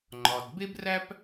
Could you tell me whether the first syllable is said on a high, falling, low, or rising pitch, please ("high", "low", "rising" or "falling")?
low